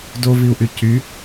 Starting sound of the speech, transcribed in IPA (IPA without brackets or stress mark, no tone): d